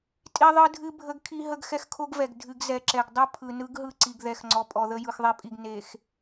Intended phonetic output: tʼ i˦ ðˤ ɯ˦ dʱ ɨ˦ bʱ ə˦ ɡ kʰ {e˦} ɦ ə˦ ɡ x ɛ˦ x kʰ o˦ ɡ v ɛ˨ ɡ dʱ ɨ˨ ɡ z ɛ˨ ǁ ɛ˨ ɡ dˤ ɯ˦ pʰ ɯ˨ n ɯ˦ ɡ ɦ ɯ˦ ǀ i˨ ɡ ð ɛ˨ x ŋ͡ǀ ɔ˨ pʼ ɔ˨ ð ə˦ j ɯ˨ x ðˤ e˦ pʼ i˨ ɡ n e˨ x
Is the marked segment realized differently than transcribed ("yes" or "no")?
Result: yes